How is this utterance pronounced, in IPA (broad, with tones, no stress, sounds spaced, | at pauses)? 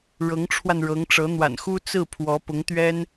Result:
ɻ ɤ˧˥ ŋ ʈ͡ʂʰ w a˧ n ɻ ɤ˧˥ ŋ ʈ͡ʂ ɤ˧˥ n̪ w a̰˨˩ n x u˥ t͡s ɹ̩˥˩ pʰ w ɔ˧˥ p ʊ˧˥ ŋ t̪ ɥ ɛ˥ n